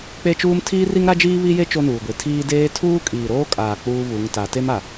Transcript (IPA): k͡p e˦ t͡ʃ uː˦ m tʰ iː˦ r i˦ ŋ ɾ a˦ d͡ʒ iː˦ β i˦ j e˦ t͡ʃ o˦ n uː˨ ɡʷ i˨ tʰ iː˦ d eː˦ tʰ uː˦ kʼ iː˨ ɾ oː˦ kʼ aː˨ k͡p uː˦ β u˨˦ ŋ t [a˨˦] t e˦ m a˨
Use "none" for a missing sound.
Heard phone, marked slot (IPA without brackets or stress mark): a˨˦